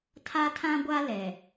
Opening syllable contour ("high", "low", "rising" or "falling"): high